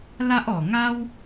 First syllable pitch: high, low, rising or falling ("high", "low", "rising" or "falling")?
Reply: high